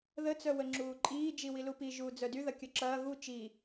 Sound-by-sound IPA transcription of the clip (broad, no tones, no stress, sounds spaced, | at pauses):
ð ə t͡s œ w ə ŋ͡ǁ uː ǃʼ iː d͡ʒ i w i l u p i ʒ uː d͡z œ d y ð ɐ kʲ œ ǁ ɐː ɣ u t͡ʃ i